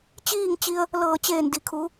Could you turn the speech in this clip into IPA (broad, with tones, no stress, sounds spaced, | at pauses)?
t͡ɕ iː˥˨ ŋ t͡ɕ i˧ ə̯ | l ɤː˧˩ t͡ɕ eː˧˩ n d i˩ kʰ u˩˧